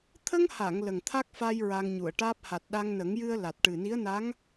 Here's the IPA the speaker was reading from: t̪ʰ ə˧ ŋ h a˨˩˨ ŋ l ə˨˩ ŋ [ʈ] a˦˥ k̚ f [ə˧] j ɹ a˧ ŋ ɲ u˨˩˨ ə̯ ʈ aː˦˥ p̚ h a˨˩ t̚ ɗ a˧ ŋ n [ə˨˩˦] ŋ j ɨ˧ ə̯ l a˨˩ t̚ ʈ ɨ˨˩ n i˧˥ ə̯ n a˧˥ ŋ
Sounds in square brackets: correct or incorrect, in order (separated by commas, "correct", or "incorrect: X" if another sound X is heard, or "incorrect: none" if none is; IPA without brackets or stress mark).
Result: incorrect: t̪ʰ, incorrect: a˧, correct